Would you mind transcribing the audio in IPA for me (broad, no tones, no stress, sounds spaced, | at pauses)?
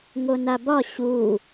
ŋ o n a b ɒ ɕ u